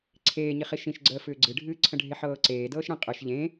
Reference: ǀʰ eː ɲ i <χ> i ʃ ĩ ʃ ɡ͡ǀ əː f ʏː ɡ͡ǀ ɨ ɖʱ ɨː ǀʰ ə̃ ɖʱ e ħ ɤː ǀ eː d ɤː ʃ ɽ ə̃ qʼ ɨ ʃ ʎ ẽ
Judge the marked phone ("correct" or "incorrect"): correct